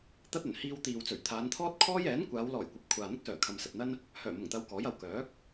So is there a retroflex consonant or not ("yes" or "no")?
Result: no